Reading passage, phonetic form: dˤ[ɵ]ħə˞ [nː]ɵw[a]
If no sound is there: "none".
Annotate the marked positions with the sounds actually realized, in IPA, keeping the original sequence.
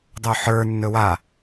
ɵ, nː, a

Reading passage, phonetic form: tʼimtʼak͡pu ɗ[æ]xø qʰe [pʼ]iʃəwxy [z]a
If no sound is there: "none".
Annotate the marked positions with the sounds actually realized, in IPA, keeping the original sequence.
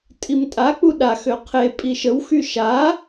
a, pʼ, ʃ

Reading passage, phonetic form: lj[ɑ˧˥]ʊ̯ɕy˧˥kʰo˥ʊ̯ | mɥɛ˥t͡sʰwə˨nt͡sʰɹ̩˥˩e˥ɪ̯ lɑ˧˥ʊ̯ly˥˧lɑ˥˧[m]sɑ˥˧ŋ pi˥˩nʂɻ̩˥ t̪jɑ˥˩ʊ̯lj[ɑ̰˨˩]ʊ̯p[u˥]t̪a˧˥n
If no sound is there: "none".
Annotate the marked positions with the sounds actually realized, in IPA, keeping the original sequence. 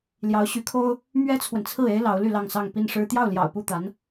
ɑ˧˥, ŋ, ɑ̰˨˩, u˥˩

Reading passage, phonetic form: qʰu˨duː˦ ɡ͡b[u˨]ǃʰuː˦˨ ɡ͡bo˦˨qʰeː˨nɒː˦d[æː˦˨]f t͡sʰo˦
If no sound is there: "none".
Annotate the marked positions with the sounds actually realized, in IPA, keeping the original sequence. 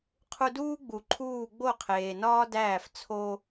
u˨, æː˦˨

